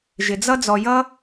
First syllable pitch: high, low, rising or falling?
low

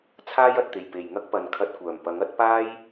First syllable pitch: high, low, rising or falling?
high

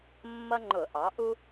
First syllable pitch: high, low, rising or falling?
high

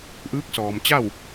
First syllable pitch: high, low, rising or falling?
rising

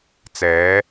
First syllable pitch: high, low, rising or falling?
rising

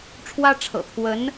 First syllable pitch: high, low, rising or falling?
high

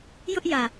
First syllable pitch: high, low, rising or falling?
high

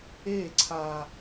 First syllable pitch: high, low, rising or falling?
falling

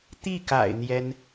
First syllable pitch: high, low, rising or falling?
falling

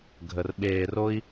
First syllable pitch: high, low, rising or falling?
low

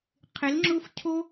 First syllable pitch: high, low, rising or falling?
rising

